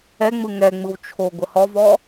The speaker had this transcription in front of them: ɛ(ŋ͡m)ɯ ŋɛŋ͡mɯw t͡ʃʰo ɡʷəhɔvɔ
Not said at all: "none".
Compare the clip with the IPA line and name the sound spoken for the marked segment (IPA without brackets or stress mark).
ŋ͡m